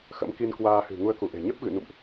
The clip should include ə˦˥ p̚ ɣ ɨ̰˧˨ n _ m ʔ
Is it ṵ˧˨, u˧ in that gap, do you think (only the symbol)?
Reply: ṵ˧˨